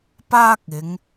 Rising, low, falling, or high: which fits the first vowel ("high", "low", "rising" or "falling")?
high